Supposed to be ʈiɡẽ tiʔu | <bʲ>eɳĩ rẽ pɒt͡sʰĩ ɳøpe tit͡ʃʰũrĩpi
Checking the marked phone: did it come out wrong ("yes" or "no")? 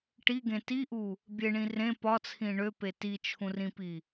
no